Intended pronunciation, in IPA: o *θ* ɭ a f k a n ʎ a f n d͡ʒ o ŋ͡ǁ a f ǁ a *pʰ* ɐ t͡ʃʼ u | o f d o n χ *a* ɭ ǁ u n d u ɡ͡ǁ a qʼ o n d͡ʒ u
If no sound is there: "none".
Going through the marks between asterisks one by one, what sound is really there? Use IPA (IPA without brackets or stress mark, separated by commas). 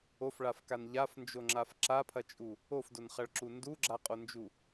f, pʰ, ɐ